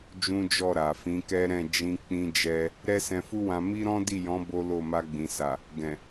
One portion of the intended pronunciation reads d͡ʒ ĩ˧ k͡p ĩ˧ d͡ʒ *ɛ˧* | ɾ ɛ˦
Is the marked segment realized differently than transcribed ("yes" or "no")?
no